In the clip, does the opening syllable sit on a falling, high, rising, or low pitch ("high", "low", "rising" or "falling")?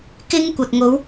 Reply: high